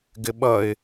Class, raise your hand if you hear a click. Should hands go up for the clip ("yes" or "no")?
no